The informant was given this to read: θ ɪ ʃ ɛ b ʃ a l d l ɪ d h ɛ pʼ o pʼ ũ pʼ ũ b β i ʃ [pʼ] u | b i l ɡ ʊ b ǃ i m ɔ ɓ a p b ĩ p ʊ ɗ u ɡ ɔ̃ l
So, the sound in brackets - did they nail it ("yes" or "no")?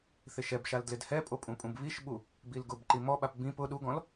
no